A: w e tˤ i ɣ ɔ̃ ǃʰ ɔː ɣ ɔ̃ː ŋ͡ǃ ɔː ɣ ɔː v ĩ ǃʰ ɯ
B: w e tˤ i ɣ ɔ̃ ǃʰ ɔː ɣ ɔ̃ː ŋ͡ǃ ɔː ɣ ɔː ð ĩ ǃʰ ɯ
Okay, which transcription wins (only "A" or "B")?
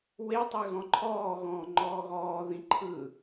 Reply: B